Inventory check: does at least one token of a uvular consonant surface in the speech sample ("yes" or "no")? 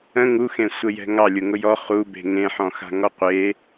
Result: yes